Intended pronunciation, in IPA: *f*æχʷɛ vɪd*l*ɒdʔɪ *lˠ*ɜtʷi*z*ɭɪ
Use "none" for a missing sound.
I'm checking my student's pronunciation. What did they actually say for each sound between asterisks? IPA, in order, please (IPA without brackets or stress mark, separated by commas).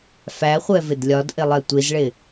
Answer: f, lʲ, lˠ, z